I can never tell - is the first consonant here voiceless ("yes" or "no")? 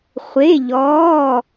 yes